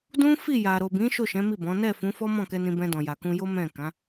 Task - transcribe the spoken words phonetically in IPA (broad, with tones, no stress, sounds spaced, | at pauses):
d ũ˦ f i˦˨ j a˨ ɾ o˨ b ĩ˨˦ ʃ o˦˨ ʃ ɛ̃˨˦ m i˦˨ b ɔ̃˨˦ n ɛ˦˨ f ũ˨˦ f ɔ˦ m ɔ̃˦˨ k ɛ˧ n ĩ˧ b ɛ̃˧ d ɔ̃˨ j a˨ k ũ˧ j o˦ m ɛ̃˦˨ k ã˨˦